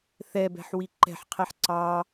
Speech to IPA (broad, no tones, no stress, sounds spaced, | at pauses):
θ ɛ b ɛ̤ ħ w i ǃ ɛ̤ ħ qʰ ɛ ħ ǀ ɑ